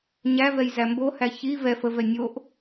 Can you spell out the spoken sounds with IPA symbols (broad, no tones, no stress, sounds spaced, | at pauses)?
ɲ æ v ɛ j z æ m b o h æ ç i v ɛ f ə v ɛ nʲ o ʔ